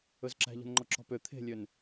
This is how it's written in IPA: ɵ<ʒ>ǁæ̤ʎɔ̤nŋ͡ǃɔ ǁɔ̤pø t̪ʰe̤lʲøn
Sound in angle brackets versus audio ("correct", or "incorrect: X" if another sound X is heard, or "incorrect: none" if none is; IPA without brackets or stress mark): incorrect: z